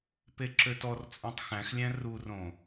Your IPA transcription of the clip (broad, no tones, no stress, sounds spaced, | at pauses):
p e ǁ ø t ɔ r t͡sʼ õ tˤ x æ̃ x lʲ æ̃ r u r õ